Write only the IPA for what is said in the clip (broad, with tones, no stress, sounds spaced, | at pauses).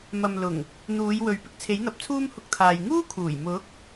m ɐ˨ m l ʊ˨˩ ŋ | n̪ uː˨˧ j w ɵ˨ ɥ p ɪ˥ k̚ t͡sʰ e˨˥ j n̪ ɐ˨˥ p̚ t͡sʰ uː˥ m h ʊ˧ k̚ t̪ʰ aː˨ j ŋ uː˥ kʰ uː˨˩ j m ʊ˨˥ k̚